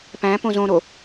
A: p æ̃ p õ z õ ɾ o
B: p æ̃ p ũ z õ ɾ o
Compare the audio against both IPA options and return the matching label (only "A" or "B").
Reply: A